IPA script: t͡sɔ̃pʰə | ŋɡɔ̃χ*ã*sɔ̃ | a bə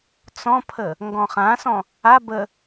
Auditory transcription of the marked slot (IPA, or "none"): ã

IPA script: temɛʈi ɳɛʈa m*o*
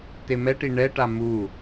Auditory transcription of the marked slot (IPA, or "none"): u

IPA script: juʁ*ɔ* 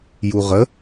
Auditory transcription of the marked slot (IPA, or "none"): ə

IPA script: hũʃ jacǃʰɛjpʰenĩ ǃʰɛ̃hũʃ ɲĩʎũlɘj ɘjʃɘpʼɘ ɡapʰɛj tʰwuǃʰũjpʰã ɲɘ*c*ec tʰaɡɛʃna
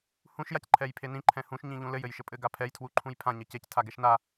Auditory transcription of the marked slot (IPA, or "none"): c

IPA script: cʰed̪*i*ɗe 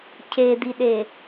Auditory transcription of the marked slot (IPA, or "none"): i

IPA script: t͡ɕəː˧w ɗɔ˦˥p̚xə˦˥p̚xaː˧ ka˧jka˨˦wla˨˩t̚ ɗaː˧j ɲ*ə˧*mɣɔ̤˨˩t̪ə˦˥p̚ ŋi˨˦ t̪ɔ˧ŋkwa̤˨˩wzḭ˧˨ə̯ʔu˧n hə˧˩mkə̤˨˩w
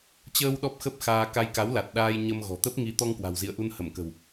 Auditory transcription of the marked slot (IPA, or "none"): ə˧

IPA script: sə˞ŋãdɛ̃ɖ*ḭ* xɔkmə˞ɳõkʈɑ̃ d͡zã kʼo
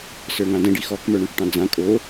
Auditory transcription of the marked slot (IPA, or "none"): i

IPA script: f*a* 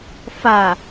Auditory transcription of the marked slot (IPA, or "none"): a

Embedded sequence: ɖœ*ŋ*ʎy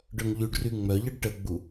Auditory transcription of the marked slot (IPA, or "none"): ŋ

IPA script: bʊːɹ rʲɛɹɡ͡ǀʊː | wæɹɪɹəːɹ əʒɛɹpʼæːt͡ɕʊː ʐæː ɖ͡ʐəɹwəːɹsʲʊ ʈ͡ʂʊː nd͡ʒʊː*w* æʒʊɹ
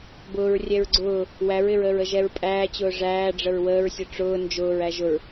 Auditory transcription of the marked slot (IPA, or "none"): ɹ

